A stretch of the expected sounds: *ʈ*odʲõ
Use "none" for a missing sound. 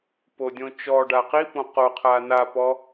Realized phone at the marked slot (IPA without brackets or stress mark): p